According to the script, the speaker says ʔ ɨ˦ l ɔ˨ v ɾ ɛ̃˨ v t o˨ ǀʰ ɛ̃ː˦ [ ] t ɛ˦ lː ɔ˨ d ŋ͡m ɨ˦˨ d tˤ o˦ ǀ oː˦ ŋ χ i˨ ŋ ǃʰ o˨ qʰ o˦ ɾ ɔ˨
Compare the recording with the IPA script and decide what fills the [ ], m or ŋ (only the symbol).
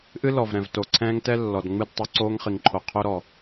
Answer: ŋ